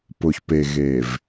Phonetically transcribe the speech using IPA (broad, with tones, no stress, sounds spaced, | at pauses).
p ʊ˨ ç p e˨ ɣ e˨ v